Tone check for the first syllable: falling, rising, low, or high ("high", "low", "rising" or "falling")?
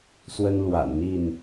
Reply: high